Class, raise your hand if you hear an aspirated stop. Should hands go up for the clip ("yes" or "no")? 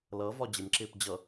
no